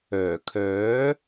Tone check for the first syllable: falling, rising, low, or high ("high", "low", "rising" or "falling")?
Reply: low